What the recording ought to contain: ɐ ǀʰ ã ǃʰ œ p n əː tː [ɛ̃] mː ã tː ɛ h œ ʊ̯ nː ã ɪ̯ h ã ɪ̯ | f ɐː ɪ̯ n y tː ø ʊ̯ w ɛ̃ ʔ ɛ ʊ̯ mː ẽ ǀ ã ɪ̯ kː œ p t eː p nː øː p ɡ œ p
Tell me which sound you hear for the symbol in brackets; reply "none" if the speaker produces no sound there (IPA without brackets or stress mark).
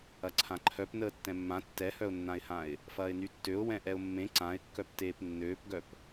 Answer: ɛ̃